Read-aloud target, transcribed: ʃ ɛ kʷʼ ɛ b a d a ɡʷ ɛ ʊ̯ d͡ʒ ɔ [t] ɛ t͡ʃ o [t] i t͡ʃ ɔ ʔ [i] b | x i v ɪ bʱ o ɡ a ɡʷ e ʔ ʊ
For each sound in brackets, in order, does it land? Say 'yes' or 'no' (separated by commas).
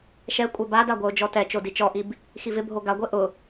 yes, no, yes